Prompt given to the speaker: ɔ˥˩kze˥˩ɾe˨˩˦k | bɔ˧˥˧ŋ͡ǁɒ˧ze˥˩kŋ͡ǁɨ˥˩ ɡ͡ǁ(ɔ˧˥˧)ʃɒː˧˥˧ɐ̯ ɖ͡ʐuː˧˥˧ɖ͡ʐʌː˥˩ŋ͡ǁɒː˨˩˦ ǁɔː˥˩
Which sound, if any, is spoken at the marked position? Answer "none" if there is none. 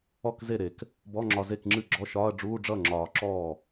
ɔ˧˥˧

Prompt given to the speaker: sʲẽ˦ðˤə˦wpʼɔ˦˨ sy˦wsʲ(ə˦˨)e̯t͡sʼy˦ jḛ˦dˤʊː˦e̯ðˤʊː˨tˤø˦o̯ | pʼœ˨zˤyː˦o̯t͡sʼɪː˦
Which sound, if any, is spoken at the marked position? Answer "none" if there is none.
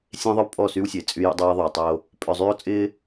ə˨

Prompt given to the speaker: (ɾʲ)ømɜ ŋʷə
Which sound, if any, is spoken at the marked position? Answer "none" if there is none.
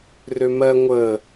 r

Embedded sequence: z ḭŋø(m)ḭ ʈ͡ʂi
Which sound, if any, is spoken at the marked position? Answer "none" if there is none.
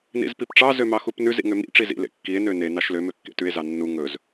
m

